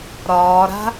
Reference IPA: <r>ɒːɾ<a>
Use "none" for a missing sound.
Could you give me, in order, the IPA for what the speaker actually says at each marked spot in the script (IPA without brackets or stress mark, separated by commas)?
ɾ, a̤